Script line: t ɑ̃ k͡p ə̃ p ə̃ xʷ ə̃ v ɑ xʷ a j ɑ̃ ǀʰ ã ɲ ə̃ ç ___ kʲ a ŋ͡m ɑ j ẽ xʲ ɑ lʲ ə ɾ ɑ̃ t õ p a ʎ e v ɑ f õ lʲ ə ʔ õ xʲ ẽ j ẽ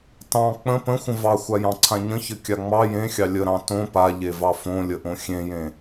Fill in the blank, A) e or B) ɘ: B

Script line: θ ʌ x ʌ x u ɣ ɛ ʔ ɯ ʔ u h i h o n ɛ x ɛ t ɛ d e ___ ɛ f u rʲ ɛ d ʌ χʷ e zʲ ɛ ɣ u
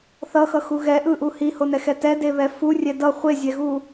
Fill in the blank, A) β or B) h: A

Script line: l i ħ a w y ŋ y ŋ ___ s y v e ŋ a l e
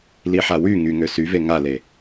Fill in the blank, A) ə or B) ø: B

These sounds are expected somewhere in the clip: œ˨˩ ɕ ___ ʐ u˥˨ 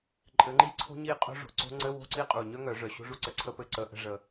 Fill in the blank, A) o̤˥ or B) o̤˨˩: A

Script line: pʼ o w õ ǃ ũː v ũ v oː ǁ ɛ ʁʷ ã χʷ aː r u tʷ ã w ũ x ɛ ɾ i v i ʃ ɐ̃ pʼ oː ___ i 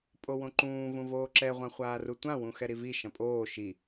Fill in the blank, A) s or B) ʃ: B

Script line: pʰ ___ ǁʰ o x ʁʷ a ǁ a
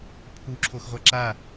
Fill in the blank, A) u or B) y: A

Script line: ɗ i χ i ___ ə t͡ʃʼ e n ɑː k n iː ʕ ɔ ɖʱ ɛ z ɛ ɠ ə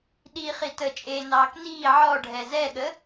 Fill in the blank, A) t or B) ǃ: A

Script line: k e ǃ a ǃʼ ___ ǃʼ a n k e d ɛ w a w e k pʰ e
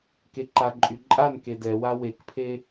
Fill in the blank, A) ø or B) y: B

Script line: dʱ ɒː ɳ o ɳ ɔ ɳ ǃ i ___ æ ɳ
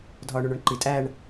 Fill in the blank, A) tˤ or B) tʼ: B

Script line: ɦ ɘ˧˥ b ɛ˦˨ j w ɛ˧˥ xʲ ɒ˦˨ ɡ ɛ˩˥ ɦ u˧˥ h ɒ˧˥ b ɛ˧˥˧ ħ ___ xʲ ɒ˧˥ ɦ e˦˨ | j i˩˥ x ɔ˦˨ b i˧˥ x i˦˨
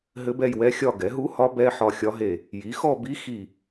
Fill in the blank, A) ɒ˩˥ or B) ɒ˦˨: B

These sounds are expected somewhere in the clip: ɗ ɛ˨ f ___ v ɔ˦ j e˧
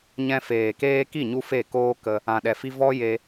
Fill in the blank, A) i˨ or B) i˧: B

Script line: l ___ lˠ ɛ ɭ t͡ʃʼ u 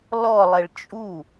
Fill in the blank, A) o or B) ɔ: B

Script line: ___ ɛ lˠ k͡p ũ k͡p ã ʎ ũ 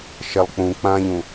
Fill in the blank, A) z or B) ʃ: B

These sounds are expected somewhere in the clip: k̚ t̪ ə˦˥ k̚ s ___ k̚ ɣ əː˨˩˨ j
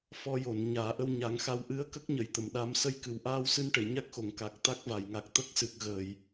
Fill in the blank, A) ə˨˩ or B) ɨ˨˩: B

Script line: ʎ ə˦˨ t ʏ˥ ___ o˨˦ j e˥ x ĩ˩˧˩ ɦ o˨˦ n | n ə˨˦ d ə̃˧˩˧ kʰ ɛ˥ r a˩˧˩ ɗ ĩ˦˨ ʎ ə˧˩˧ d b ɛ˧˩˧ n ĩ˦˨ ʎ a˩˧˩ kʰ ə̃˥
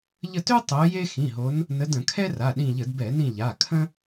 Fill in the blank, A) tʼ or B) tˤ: B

